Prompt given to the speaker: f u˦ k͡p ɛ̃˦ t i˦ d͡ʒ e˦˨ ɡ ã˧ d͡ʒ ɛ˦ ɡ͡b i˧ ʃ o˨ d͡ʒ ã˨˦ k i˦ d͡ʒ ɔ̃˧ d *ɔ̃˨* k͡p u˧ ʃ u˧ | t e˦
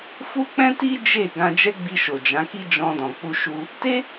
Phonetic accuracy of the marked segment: correct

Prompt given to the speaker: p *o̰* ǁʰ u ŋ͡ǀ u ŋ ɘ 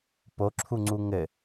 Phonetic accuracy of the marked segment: incorrect: o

